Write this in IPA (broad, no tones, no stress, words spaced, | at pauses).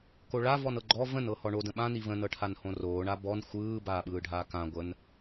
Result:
koɭavɔn ɤɡ͡ǃɔ və̃nɤhɔ ɳodə̃ ɓãni və̃nɤʈʰanhõ roːɳa bɔn xʷɯː baːɓɯːɖʱaːkã ɡʷən